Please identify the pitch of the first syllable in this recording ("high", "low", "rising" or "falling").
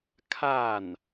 falling